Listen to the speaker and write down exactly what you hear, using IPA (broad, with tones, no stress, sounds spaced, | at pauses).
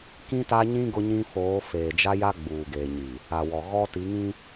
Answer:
k ĩ˦ t a˦ ɲ ĩ˦ ɡ ʊ˦ ɲ ĩ˦ f oː˨˦ f eː˨ d͡ʒ a˦ j a˦ ɡ͡b uː˨ ɡ eː˨ ɲ i˨ | a˨ w ɔ˨ ɣ ɔ˦ t i˨˦ ŋ ĩ˦